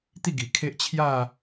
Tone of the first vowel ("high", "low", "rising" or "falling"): falling